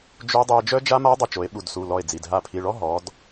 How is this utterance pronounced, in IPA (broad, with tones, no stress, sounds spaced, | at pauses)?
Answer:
d͡ʒ o˦˥ dˤ u˧ e̯ d͡ʒ œ˦˥ d͡ʒ a˦˥ m a˦˥ dˤ œ˧ t͡ʃ o˩˧ e̯ ɓ u˧˩ d s u˩˧˩ l ɔ˧˩ e̯ d͡z i˩˧˩ d ɦ a˧˩ pʰ i˩˧˩ ɭ ɔ˦˥ ɦ ɔ˩˧ d